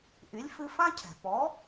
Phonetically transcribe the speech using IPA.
ʔy˩˥lʲ fɨ˧ fã˥cʰɛ̤˩ pɔ˩˥

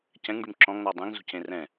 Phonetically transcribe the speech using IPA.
cɛ̃ŋɖym ǁɔ̃ŋn̪ɔ dˤẽŋzṳcẽ rɛ̃

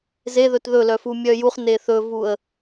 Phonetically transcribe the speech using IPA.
zeðɵt ðɵlœ fumʲœjuχne θɵvuə̯

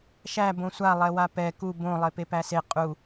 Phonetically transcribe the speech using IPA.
ʃæ bõsʷalˠɛwa pɛ ku bõ lˠepepæse qʼu

